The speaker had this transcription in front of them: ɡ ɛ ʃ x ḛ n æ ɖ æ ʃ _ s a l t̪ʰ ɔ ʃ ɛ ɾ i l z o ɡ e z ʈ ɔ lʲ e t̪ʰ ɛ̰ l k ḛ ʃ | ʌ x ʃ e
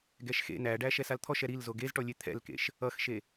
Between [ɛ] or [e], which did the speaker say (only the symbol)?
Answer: ɛ